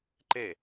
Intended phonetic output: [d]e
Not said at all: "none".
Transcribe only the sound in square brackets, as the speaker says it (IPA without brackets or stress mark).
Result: ǃ